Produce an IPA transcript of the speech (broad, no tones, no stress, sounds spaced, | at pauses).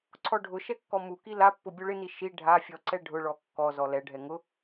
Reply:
ǀʰ ɔ ɖʱ ʊ ʃ ɛ kː ɔ m u k i l a pː ʊ bʲ u ɭ ɪ n i ʃ i ɖʱ a fʲ ɔ ǀ ɛ ɖʱ ʊ ɭ ɔ kː ɔ z ɔ l ɛ ɖʱ ɛ ŋ ʊ